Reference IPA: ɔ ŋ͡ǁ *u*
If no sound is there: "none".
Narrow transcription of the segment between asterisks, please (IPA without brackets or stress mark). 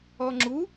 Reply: u